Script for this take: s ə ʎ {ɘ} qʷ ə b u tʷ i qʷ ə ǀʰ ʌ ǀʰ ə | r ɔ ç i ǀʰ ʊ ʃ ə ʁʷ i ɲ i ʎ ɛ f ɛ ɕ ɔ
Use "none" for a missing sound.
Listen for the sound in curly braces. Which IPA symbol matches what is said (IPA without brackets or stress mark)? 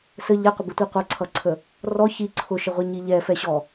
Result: ɛ